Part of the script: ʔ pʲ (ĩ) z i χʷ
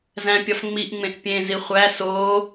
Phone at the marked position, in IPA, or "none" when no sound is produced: ẽ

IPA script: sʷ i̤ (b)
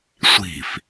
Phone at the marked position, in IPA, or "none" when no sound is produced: f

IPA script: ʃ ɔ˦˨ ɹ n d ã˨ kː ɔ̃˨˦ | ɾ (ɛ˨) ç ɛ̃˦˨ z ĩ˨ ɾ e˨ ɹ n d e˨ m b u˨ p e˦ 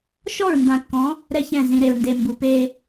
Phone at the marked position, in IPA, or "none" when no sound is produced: ɛ˦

